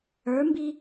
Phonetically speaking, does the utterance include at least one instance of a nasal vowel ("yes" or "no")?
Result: no